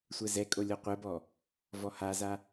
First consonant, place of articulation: alveolar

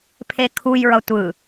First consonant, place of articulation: labial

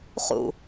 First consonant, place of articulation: uvular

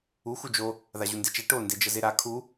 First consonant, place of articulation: velar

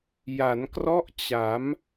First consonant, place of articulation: palatal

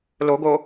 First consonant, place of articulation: alveolar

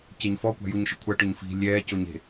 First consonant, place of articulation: palatal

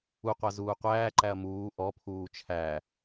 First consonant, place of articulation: uvular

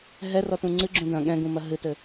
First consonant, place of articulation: glottal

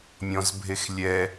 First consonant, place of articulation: labial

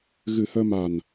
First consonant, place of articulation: velar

